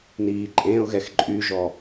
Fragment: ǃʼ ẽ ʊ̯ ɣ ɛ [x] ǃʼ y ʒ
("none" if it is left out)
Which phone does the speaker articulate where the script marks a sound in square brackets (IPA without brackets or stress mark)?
x